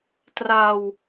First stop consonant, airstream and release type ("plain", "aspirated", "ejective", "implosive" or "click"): plain